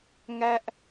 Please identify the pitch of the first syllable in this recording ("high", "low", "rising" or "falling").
high